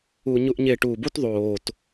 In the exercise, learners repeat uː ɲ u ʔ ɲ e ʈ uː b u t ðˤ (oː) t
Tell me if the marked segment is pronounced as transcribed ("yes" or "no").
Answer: yes